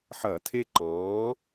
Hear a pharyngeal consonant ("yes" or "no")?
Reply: yes